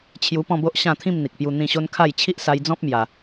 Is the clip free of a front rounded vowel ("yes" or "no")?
yes